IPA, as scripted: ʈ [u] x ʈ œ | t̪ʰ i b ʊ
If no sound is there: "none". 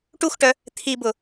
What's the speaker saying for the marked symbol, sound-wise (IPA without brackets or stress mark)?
u